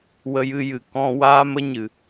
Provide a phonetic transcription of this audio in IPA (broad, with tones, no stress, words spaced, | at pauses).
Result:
wə˧jɨ˧jɨ˨ kɔ̃˧waː˦mə˦ɲɨ˨